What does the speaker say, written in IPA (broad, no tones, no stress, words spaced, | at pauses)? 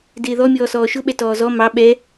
dɪːðɔ mʲɔːsɔːʃʊɓɛ tɔːzɔ mɑ ɓɛ